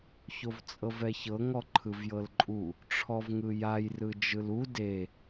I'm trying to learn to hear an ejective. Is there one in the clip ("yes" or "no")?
yes